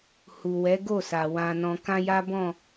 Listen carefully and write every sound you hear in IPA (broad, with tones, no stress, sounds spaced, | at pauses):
h u˨ w ɛ˨˦ ɡ o˦˨ s a˨ w ã˨ n ɔ̃˨ k ã˧ j a˦ b ɔ̃˦˨